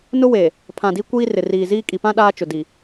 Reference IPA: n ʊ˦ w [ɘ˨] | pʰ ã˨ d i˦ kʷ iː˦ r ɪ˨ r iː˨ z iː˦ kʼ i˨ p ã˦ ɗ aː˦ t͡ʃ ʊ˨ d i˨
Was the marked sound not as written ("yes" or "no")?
yes